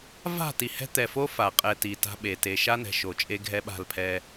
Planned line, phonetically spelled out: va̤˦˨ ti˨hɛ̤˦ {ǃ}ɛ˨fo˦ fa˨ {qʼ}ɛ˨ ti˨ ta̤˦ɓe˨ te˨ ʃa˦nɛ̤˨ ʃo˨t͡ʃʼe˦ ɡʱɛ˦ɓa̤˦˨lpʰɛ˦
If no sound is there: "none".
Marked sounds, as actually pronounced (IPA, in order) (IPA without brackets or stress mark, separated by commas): t̪, qʼ